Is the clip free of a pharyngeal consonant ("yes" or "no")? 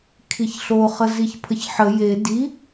no